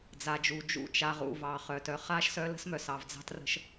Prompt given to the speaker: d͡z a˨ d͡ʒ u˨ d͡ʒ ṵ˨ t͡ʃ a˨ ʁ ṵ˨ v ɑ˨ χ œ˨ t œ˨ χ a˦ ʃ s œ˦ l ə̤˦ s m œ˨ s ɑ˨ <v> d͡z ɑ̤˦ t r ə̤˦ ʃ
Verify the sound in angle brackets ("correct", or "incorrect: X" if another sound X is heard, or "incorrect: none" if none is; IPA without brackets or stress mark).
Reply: correct